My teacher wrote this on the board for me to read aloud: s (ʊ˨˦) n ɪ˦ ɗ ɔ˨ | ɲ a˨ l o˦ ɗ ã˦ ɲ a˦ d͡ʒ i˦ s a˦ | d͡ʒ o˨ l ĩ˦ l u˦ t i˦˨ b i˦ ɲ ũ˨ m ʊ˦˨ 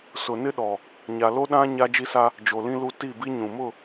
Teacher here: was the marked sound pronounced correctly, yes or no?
no